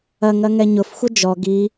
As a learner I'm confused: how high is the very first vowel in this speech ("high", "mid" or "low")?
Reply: low